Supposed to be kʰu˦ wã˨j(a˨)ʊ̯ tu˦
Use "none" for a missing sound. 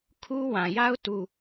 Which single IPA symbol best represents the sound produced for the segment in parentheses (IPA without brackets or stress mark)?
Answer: a˦